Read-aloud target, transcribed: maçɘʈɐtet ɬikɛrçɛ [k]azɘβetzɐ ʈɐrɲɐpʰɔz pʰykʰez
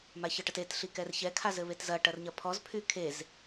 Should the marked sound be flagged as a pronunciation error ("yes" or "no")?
yes